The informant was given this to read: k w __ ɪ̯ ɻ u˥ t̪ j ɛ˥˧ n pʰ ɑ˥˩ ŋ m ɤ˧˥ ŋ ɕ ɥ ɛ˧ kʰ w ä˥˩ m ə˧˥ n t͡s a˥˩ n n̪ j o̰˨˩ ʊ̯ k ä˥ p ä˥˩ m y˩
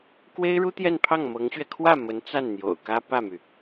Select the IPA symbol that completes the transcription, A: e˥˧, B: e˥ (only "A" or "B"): B